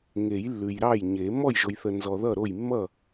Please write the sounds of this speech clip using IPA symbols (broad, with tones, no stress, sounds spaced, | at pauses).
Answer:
ŋ e˨˩˦ j lː ʉ˨ j ɾ ɑ˥˩ j ɲ e˨˩˦ m ɔ˥˩ j ʒ o˨ j θ ə˨ n z ɔ˨ ð ʌ˥˩ ɾ o˥˩ j mː ʌ˥˩